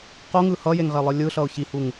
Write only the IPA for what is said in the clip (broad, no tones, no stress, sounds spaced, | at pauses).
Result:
q o ŋ ɯ h ʌ j e ŋ ʁ e lˠ ɯ lʲ ɯ ɬ ʌ ʊ̯ ç i h u ŋ